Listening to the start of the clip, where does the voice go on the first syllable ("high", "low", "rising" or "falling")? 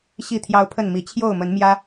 falling